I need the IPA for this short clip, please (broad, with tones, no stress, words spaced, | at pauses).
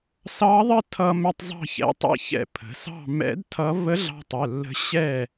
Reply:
sɑ˧˥ðˤə˥˨tʰʌ˧ mɛ˧tˤzˤɑ̤˥˨çɛ̰˧˥tˤɛ̰˥˨ çɛ̰˧pʰə̤˩˧sɑ̤˥˨ mɛ̰˧˥dtʰʌ˧˥ və˧˥ɮɑ̤˧tˤə˩˧˩ lːə̤˧˥ɕɛ˥˨